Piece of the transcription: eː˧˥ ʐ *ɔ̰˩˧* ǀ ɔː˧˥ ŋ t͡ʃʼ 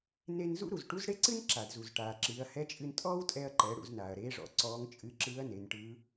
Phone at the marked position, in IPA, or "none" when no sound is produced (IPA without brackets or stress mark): ɔ̰˩˧